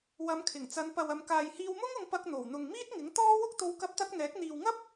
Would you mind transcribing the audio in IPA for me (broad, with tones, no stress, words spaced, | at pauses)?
wɐ˨˧mkʰɪ˨˩ŋt͡sɐ˨˧npɐ˨w ɐ˨mkaː˨jhiː˧w mʊ˥ŋʊ˧ŋ pɐ˧k̚ n̪o˨˩wn̪ʊ˨ŋmiː˥t̚ŋɪ˨˥ŋ t̪ɔː˥ wʊ˥k̚t̪o˧w kɐ˥p̚t̪ɐ˥k̚ n̪ɛː˨˥k̚ n̪iː˨wŋɐ˥p̚